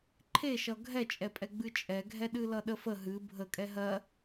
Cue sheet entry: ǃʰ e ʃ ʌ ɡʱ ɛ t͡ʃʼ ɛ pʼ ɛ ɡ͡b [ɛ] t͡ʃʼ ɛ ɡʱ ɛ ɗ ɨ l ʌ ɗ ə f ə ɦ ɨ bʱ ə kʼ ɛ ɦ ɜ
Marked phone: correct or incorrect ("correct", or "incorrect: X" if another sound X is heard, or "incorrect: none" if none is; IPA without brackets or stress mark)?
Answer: incorrect: ɨ